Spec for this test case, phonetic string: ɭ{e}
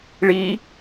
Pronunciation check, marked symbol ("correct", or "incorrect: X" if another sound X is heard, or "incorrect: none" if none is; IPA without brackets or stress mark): incorrect: i